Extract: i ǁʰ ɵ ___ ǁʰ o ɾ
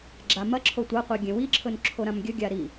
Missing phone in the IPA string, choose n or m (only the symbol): n